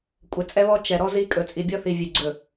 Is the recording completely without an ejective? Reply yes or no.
no